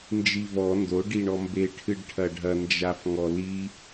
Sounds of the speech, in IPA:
n d͡ʒ i v ɔ n d o ɖ i ɳ ɔ m b e ʈʰ ɨ ɖ ʈʰ ɐ ɖʱ ɐ n d͡ʒ a f ŋ ɔ l i

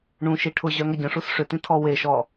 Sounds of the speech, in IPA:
ɳ ũ ʃ i ʈʰ ʊ ʑ œ ŋ ɐ ɟ ə̃ ʂ u s ʂ ʏ t ĩ tʰ ɔ w e ʃ ɔ

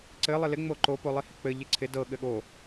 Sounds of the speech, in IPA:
ǀ ɘ lˠ ɪ l ɪ ŋ͡m o ǃ o p o lˠ i h ɪ k͡p ɘ ʎ ɪ ǀʰ ɪ d ɤ ɠ ɘ ɠ o

